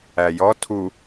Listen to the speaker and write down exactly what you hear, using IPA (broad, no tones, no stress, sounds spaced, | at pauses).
æ j ɔ tʰ u